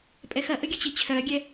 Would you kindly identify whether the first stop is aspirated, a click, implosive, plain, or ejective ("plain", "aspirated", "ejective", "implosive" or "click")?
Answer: ejective